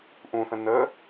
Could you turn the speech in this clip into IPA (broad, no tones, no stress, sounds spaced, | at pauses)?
ʔ ũ θ ə̃ n ə